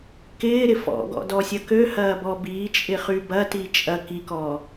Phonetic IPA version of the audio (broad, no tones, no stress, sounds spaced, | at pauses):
k ɪː ɾ ɪ f ɔ̰ ɡ ɔ̰ d ɔ sʲ ɐ k ø h ɐː b ɔ b iː t͡ʃʼ ɪ χ y b ɐ t i t͡ʃʼ ɐ k i k ɔ